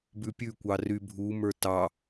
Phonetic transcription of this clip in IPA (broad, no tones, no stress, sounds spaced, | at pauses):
b ʉ pʲ ʉ kʷ ɑ r y bʱ u m ə˞ t ɑ